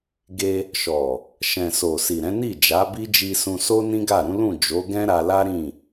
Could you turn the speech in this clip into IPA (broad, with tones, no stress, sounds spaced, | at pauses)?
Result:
ɡ e˧ | ʃ ɔ˨ | ʃ ɛ̃˨ s o˨ s i˨ ɾ ɛ̃˨˦ n i˦˨ d͡ʒ a˨˦ b i˦ d͡ʒ i˧ s ũ˧ s o˦ n ĩ˦ ɡ a˦˨ ɾ ũ˨˦ l ũ˦˨ d͡ʒ o˨˦ ɡ ɛ̃˦ ɾ a˧ l a˦ ɾ ĩ˦˨